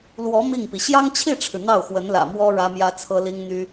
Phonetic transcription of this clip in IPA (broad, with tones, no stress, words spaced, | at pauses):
lwɔ˧˥ mi˥˩ŋpi˩ ɕjɑ˥ŋt͡ɕʰi˥˩ʈ͡ʂʰɻ̩˩ n̪ɑ˥˩ʊ̯xwə˧˥nlä̰˨˩ mwɔ˥ ɻä˥mjä˥t͡sʰɤ˥ li˥ŋn̪y˥